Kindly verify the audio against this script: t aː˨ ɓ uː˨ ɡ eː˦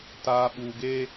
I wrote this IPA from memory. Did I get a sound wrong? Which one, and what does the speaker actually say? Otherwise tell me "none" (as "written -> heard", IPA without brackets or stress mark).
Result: none